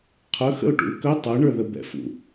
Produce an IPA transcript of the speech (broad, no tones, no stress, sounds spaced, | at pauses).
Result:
qʰ ɵ x ə̰ ʊ̯ ʈ ṵ ɪ̯ k ɵ tˤ œ ɳ ə˞ ð ə b ɛ̰ f ṵ